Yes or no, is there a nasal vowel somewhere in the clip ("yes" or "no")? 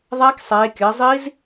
no